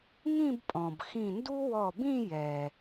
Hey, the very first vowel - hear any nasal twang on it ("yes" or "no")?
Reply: yes